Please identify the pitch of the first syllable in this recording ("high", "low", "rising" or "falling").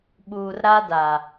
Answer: low